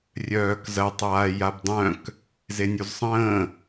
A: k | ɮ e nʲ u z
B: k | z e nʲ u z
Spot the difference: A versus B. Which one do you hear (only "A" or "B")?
B